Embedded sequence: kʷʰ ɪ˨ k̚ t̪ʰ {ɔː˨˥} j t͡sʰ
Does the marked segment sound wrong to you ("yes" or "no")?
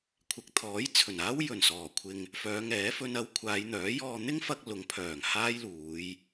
no